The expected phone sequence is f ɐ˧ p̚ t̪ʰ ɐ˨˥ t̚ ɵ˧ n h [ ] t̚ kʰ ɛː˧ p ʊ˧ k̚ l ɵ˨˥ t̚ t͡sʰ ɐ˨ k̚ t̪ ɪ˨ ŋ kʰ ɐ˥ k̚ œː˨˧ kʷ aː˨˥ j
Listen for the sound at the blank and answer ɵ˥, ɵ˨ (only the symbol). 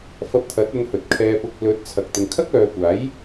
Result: ɵ˨